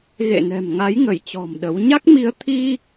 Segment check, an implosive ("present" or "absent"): present